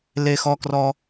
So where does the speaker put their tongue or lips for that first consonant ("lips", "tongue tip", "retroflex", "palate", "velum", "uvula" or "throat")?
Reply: tongue tip